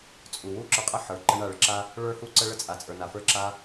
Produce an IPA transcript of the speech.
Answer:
t͡sʼ u˨ w u˦ ǁ ə˞˧ qʼ ə˦˨ ħ ə˞˨ ǃ ə˧ ɳ a˦˨ ɭ ə˦ ǁ a˦ | ɭ ə˞˧ h u˧ ǀ ə˧ ɭ ə˧ t͡sʼ a˨ t͡sʼ ə˞˨ n a˨ f ə˞˧ ǁ a˦

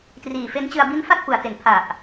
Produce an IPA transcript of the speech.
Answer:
t r iː˨˩ f e˦˥ n t͡ɕ ɯ˧ a̯ b i˦˥ n f a˥˩ t̚ p u˨˩ a̯ t e˨˩ n pʰ a˨˩ ʔ

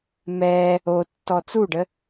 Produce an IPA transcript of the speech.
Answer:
m ɛ | o tː ɔ t͡s u ɖ ə

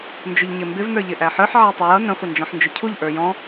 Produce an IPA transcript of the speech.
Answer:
n d͡ʒ ʊ ʎ ɲ ɪ m b ɪ v n ə˞ ʎ ɪ ʔ æ ħ ə˞ ħ ʕ æ tˤ ə j ʌ n ə̃ χʷ ə n d͡ʒ ɔ̃ ħ n d͡ʒ ʊ cʰ u ʎ ʔ ə˞ j ɔ̃

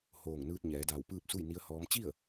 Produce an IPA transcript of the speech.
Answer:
h oː˧˩ ŋ n ɯː˧ t̚ ɲ ɛː˩˧ d aː˧˩ w p ɯː˥˨ p̚ s u˥˨ j n i˧˥ ə̯ h ɔː˧˥ m t͡ɕ i˥˨ ə̯

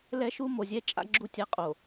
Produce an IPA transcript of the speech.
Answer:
l ɛ˦ ʃ u˦ m o˨ zʲ ɛ˦ t͡ʃʼ a̰˦ ɡ͡ǁ u˦˨ tʲ a˦ qʼ o˨

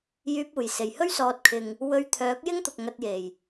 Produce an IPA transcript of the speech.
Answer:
j yː˧ p̚ uː˨˩ j s e˨˩ j h ɵ˥ ɥ s ɔː˨ t̚ kʰ ɪ˨ ŋ | w ɵ˧ ɥ t̪ʰ œː˨˥ k̚ j ɪ˥ ŋ t̪ ʊ˨ k̚ ŋ ɐ˧ t̚ j e˨˩ j

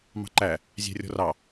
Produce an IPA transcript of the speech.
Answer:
m ɑ̤ ǃ æ | zʲ æ̤ rʲ ɔ̤ r ɑ

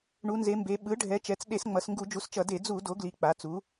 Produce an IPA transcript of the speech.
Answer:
ɳ u˩˧ n z e˩˧ m b e˩˧ ɓ ɯ˩˥ ɖʱ ɛ˩˥ t͡ʃ ɛ˩˥ t͡s ɗ e˧˩˧ s ŋ͡m ʌ˩˧ s ŋ ɡ u˧˩˧ d͡ʒ u˩˥ s t͡ʃ ʌ˧˩˧ d e˧˩˧ d͡z u˧˩˧ d o˩˥ ɡ l i˩˥ k͡p a˩˥ t͡s u˩˥

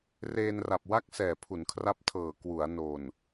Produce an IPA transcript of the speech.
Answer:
r eː˧ n r a˨˩ p̚ w a˥˩ k̚ s ɛː˨˩ pʰ u˩˦ n kʰ r a˦˥ p̚ tʰ ɤː˨˩ k w u˩˦ a̯ n o˨˩ n

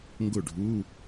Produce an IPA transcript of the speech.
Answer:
ŋ ɡ ʊ˥˩ ɖʱ u˧˥˧

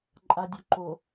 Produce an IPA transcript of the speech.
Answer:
ǃʼ a dʲ o ǃ o

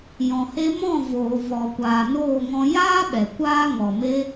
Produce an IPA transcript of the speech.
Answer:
j ɔ̃˨ h e˧ m ɔ̃˦˨ v oː˨ v ɔ˨ kʷ aː˨ n oː˦˨ ŋ ɔ̃˧ j aː˦ ɓ ɛ˨ kʷ aː˦ ŋ ɔ˨ m e˧

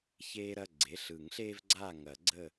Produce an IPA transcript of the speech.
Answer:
ç eː˦ ɾ ɐ˩˧˩ ɡ͡ǀ e˩˧˩ ɬ ɯ˨˩˦ ŋ ɬ eː˦ v ɡ͡ǀ aː˦˨ ŋ ɐ˨˩˦ ɡ͡ǀ ə˦˨

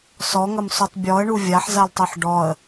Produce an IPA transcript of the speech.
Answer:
s ɔ ŋ ɐ m s u tˤ bʲ ɔ ə̯ ɳ u vʲ a ħ z a l tˤ i ħ ɖ ɔ ə̯

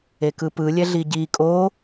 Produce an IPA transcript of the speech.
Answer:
e k ɯ p ɯ lʲ ɛ ɮ i ɟ i kʼ o

